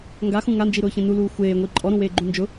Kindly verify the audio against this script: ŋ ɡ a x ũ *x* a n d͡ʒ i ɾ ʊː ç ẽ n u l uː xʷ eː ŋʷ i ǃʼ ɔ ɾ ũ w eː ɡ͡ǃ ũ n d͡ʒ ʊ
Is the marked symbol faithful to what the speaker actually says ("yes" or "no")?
no